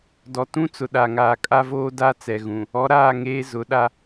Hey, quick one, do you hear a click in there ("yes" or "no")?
no